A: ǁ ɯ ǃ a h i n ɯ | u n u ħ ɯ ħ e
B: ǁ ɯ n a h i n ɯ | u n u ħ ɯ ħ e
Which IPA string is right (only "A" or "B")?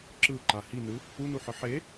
A